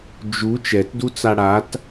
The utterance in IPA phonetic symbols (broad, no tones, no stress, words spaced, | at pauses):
d͡ʒu t͡ʃɛtdut͡sa ɽat